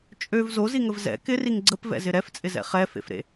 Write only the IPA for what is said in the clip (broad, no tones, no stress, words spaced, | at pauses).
t͡ʃʼøv zoziŋəv zɛ̰ kɪriŋ ɡ͡ǀəpvɛ̰zɪ ɾɛft͡sʼɪzɛ̰ χɛfḛfɾḛ